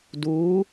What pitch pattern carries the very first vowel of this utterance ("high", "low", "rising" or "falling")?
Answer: rising